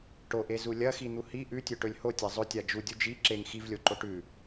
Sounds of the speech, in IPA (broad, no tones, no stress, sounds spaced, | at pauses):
ʈ o ʔ e z u lʲ ɐ x i n̪ u h i ʔ ʉ tʲ ɵ ʈ ɵ lʲ h o tʲ a zˤ ɵ tʲ a d͡ʒ u dʲ u d͡ʒ i ǁ e ŋ x i v lʲ o ǃ o ʈ ʉ